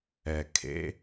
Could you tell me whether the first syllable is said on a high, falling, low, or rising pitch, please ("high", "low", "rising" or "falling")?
low